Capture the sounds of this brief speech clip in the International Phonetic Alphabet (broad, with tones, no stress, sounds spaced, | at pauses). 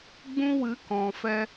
ɡ͡b ũ˧ w ɨ˨˦ k ɔ̃˨ f ɛ˧